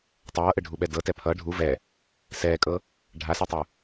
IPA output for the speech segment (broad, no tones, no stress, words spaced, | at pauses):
tˤʌːʔɘɖʱuɓɛ dɤtɛ pʰʌ ɖʱu vɛ | sɛːkʼɤ | ɖʱasatˤu